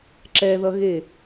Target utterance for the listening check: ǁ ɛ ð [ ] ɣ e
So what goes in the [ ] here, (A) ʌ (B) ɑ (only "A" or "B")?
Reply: A